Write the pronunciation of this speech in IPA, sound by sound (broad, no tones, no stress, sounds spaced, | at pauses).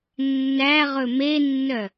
nː æ ʁ ɵ m e nː œ